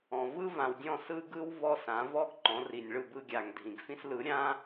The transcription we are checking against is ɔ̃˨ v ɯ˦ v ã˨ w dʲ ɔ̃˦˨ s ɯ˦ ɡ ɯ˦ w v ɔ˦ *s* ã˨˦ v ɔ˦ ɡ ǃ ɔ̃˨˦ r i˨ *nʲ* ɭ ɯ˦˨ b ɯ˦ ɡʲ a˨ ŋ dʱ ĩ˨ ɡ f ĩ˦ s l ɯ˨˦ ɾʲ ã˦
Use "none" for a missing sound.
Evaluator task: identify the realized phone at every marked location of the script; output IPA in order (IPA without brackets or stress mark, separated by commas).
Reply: s, nʲ